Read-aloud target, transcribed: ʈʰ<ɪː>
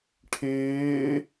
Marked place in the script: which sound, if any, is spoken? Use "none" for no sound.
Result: ɪː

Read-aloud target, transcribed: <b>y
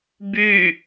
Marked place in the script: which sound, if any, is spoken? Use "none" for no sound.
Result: b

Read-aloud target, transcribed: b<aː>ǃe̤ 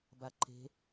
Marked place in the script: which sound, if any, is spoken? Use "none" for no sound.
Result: a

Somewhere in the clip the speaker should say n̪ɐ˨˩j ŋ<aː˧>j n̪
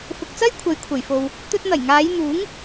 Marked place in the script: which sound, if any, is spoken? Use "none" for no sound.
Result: aː˨˧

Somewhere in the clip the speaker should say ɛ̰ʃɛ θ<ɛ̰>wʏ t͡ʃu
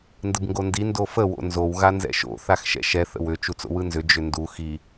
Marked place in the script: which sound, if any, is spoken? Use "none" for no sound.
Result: ə̰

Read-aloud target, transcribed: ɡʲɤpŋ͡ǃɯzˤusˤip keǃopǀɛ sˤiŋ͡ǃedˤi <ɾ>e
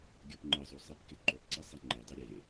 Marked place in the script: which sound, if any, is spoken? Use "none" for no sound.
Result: ɾʲ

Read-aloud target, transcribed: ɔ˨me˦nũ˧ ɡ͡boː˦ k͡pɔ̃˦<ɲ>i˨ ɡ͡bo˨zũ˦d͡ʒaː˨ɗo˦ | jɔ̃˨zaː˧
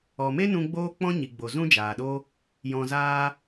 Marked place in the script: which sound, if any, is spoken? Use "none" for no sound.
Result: ɲ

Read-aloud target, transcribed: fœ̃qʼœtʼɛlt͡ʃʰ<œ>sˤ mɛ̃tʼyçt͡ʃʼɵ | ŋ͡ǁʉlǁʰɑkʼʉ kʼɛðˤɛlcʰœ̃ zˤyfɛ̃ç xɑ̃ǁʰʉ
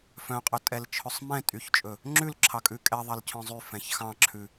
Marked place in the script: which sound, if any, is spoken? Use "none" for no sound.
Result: ɵ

